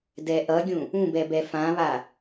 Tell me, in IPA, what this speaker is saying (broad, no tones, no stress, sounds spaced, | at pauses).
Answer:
d ɛ ʔ ʌ ɡʲ ũ | ũ b ɛ b ɛ f ã β a